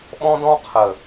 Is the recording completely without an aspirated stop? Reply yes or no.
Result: no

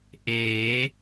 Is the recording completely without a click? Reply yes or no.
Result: yes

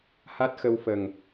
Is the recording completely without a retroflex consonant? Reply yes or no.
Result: yes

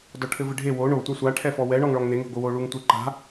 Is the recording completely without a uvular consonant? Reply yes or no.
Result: yes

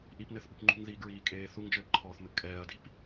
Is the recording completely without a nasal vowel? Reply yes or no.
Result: yes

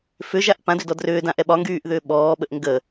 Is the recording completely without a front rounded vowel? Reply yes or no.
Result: no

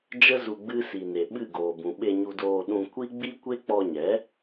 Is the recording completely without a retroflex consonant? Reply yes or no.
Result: yes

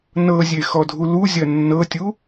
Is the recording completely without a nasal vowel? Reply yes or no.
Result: yes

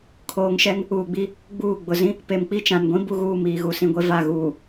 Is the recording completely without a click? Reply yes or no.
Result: yes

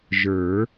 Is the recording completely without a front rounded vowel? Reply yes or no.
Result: yes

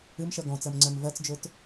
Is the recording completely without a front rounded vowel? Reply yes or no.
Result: no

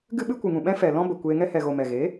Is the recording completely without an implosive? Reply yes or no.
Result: no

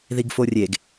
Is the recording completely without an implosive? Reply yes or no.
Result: yes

